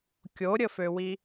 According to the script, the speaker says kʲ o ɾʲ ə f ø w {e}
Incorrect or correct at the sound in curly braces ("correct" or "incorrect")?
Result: incorrect